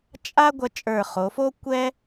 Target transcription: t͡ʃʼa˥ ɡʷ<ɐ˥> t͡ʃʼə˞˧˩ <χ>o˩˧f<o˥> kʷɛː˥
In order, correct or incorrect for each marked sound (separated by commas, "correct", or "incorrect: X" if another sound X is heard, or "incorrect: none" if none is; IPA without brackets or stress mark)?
correct, correct, correct